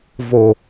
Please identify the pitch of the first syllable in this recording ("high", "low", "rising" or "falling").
low